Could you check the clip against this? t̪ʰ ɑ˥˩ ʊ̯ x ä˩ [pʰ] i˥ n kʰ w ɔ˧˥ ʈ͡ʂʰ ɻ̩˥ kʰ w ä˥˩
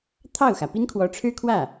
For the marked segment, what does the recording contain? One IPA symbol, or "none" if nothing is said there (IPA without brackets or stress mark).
p